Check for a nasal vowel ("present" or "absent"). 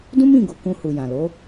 present